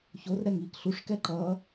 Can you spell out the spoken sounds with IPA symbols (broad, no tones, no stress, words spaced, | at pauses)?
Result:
çor ɾɛŋiːkɬuʂ kɛǃʌː